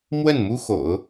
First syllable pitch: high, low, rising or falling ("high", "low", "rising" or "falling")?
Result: falling